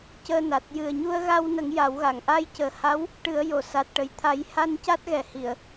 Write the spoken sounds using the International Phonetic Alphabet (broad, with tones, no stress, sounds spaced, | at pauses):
c əː˧ n a˨˩ t̚ j ɨ˨˩ ə̯ ɲ u˧ ə̯ ɣ a˧ w n ə˨˩˦ ŋ j a˨˩˦ w ɣ a˨˩˨ ŋ ʔ a˧ j c əː˨˩ h a˧˥ w | ʈ ɨ˨˩˦ ə̯ j o˨˩˨ s a˨˩ t̚ ʈ ə˨˩ j t̪ʰ a˨˩˦ j h a˧ n c a˦˥ t̚ ɣ ɛ˨˩ h i˨˩˨ ə̯